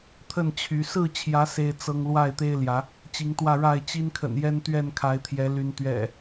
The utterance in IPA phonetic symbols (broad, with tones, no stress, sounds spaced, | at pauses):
t̪ʰ ə˥˨ n t͡ɕʰ y˨˦ s ɹ̩˥˨ t͡ɕʰ j ä˨˦ s e˦ ɪ̯ t͡s ɤ˦ ŋ l w a˥˨ ɪ̯ t̪ e˦ ɪ̯ l j ä˨˦ | t͡ɕ i˨˦ ŋ t̪ w ä˥˨ ɻ a˥˨ ɪ̯ t͡ɕ i˦ n kʰ ə̰˨˩ n j ɛ˦ n t̪ ɥ ɛ˥˨ n kʰ a˨˦ ɪ̯ t̪ʰ j ɛ˨˦ l y˨˦ n t̪ ɥ ɛ̰˨˩